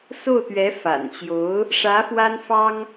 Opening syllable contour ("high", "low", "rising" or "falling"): falling